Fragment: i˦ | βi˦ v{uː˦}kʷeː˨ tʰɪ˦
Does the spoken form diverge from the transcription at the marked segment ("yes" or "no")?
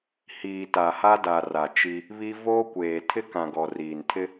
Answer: yes